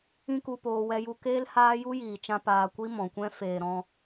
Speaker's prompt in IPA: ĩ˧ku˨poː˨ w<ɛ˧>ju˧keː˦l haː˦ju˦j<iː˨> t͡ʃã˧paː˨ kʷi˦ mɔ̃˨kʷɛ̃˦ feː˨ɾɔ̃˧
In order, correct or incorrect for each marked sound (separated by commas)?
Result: correct, correct